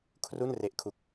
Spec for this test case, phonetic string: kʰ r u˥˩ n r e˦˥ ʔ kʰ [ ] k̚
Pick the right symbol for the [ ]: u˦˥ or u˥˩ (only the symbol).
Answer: u˦˥